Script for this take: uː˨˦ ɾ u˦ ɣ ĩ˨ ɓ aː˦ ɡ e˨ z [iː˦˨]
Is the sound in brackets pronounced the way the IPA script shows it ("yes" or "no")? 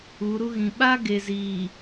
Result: no